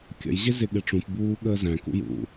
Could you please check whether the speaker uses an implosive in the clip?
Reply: yes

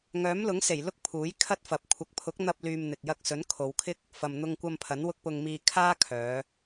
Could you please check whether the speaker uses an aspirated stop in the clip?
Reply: yes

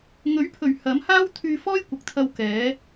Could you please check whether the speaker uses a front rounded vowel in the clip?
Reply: yes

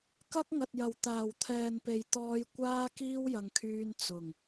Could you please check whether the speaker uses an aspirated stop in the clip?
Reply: yes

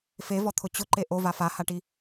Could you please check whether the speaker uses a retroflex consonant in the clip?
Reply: yes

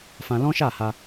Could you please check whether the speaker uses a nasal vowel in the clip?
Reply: yes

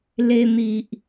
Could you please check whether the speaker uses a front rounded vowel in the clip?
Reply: no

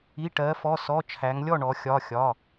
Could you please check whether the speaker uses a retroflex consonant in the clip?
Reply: yes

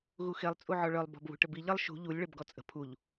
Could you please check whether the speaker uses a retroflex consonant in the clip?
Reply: yes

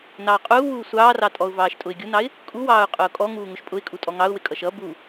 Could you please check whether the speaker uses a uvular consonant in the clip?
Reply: yes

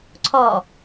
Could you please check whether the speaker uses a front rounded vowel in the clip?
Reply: no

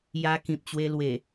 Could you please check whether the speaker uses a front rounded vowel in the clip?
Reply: no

